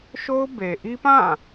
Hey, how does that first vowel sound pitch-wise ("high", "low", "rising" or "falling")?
high